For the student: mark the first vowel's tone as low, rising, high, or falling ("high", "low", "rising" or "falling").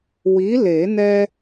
rising